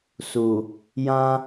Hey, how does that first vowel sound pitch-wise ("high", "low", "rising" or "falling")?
low